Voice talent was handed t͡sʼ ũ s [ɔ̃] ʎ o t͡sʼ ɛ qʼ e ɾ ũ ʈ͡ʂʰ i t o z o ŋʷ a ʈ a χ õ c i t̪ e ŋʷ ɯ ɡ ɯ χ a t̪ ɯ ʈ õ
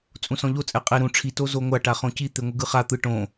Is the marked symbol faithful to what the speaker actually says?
yes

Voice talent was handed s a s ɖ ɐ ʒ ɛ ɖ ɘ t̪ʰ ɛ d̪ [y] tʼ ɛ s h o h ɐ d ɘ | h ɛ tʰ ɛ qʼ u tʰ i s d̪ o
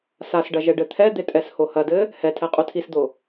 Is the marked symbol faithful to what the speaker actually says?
no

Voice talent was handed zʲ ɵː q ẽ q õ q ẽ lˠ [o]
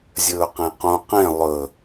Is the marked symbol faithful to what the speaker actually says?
no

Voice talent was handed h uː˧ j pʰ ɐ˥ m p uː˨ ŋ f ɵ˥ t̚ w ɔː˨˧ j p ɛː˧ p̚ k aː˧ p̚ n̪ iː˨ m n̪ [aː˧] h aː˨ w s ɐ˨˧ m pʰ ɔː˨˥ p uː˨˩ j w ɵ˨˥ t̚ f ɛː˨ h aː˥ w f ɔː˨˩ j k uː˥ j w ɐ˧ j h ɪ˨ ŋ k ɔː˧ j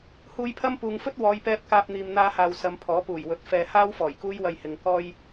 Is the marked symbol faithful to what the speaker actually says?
yes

